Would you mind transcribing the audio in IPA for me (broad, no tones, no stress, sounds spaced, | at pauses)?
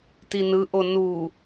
t i n ɯ ʔ o n u